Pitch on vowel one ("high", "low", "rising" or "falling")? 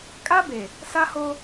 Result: high